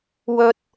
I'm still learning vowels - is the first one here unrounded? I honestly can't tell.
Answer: no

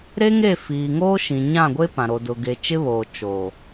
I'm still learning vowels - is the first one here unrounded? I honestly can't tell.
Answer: yes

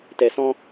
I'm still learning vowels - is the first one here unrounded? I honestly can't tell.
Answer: yes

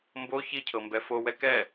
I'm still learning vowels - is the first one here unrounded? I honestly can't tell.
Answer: no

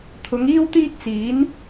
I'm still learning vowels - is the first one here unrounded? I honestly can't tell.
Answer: no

